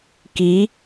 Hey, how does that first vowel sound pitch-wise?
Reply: rising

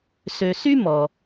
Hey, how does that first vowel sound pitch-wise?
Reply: low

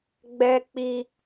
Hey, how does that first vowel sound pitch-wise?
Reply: high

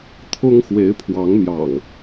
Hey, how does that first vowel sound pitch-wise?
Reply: high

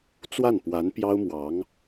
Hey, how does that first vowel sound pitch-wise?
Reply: falling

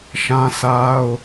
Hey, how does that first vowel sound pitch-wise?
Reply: high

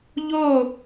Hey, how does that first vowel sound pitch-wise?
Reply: falling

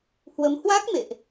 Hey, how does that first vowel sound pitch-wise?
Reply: rising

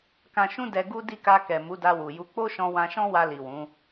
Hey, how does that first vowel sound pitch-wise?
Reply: low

